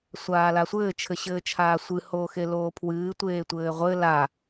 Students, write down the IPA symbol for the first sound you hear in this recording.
sʷ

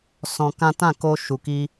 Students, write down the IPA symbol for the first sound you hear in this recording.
s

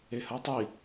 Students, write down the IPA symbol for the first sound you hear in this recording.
e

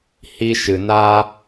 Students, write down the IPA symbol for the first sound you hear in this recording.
h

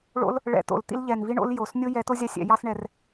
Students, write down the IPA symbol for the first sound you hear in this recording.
ɭ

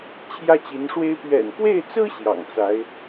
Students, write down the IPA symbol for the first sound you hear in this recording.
t͡ɕʰ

